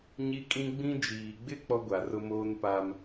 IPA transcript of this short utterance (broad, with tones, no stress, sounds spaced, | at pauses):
ɲ i˦ kʼ ĩ˦ ɡ͡b ĩ˦ d͡ʒ iː˨ ɡ͡b ɪ˦ k͡p ɔ˦ ɡʷ a˨ r ʊ˦ m oː˦ n p a˦ m